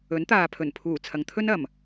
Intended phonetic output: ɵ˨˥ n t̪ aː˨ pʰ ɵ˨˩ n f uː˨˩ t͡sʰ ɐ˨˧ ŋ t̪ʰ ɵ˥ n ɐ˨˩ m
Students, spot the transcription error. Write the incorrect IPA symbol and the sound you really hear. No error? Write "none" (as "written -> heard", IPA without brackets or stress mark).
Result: f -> pʰ